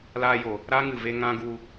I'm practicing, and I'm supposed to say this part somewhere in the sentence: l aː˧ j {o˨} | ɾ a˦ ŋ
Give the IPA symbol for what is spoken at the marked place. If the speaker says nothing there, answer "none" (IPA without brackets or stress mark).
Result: o˨